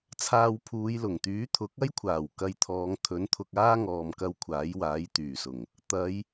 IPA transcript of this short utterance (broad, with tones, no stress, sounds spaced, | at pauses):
t͡sʰ aː˧ w pʰ uː˨˧ j l ʊ˨˩ ŋ t̪ yː˨˥ t̪ʰ ʊ˨˥ k̚ ɐ˥ j kʷʰ aː˨˩ w k ɐ˧ j t̪ʰ ɔː˨˧ ŋ t̪ʰ ɵ˨˥ n t̪ʰ ʊ˧ k̚ aː˥ ŋ ɔː˨ m k ɐ˧ w kʷʰ aː˨˥ j w aː˨˥ j t̪ yː˨˩ s ʊ˨˩ ŋ | t̪ ɐ˨˧ j